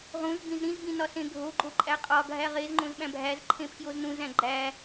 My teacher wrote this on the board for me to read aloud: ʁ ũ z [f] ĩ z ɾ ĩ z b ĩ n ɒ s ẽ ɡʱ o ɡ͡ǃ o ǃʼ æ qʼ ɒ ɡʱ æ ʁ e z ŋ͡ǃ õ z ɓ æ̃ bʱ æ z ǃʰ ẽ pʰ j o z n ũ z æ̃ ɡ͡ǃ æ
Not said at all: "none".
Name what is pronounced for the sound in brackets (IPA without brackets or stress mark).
b